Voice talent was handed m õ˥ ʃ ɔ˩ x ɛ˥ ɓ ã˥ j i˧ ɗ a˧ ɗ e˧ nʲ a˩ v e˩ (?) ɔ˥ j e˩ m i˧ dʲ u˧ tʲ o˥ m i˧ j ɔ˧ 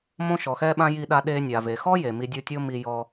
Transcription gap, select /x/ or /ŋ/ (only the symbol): x